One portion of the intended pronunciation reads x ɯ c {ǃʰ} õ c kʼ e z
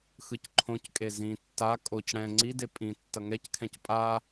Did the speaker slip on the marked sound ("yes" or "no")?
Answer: no